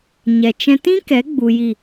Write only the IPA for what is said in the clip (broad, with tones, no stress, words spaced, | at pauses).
ɲɛ˨t͡ʃɛ̃˧tĩ˦kɛ˨˦ ɡ͡bu˧ji˦˨